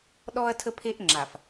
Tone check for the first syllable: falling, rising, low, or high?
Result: high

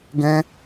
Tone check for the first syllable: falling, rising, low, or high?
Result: high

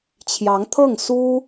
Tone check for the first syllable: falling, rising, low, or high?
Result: rising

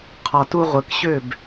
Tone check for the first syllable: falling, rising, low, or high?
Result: low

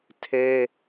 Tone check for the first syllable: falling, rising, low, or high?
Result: high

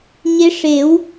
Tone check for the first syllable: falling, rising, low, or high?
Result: rising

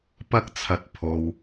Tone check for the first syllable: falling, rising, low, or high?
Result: high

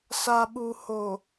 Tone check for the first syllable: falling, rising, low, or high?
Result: low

